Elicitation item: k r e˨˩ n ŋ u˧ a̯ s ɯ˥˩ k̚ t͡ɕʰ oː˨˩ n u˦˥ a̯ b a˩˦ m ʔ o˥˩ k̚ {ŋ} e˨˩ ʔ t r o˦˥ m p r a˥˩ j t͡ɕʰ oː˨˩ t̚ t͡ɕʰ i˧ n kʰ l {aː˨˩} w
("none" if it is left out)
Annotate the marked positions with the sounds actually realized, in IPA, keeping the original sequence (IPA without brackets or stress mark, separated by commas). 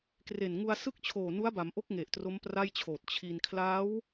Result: ŋ, aː˦˥